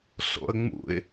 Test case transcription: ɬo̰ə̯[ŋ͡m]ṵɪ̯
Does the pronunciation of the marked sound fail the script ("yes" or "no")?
no